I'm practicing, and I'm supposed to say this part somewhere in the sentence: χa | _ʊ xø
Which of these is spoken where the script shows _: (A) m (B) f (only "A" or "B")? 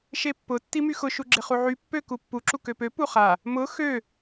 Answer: A